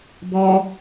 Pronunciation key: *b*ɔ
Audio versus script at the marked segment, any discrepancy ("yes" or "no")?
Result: no